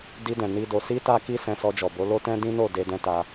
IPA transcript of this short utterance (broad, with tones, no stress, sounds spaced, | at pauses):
d i˧ d ɛ̃˨ n i˧ d o˨ s i˧ t a˦ k i˦ s ɛ̃˧ s ɔ˧ d͡ʒ ɔ˨ b o˨˦ l o˦ t ɛ̃˦ d ĩ˦ n o˦˨ d e˧ d ɛ̃˦ t a˧